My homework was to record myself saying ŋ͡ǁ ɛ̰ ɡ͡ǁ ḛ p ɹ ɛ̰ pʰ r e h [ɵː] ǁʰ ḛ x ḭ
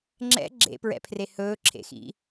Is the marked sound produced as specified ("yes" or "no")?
yes